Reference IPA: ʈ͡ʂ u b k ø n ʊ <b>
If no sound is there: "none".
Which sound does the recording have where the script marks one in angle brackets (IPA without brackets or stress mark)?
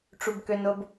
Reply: b